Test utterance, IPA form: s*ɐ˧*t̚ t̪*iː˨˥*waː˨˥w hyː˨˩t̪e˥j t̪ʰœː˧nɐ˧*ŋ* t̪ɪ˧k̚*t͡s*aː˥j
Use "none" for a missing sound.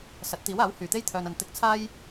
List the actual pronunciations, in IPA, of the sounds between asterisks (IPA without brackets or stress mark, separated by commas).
ɐ˨˥, iː˨˥, n, t͡sʰ